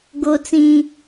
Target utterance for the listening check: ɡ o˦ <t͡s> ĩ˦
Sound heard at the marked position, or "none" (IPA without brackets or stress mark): t͡s